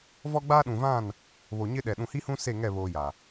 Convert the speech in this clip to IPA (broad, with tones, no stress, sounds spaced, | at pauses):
v ɔ˦ ɡ͡b aː˦ ɗ ũ˨ v ã˦˨ n | β o˨ ɲ ɪ˦ ɗ ɛ˨ ɗ ũ˨ h i˦ h ũ˦ s e˦˨ ŋ ɛ˦˨ β oː˦ j a˨